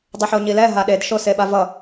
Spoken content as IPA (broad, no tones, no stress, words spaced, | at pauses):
dˤeħoɲilɛ ɦaɗed ʃoseɓavʌ